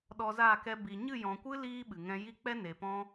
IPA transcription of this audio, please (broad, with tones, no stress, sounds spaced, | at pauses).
ɗ ɔ˧ z aː˦˨ k ɛ˧ b i˨ ɲ ɨ˦˨ j ɔ̃˨ kʷ ɨ˦ l iː˦ ɓ ɨ˨ ŋ ɛ̃˧ j i˦ k͡p ɛ˦ n e˨ p ɔ̃˦